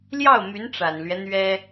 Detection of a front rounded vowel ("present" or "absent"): present